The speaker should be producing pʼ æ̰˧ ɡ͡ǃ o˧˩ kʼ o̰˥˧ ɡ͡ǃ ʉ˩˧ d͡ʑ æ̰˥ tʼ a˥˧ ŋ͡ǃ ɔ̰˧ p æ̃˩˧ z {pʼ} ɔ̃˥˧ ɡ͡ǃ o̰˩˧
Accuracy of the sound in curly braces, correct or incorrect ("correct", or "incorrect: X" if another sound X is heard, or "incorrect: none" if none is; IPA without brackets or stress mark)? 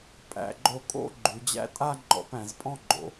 correct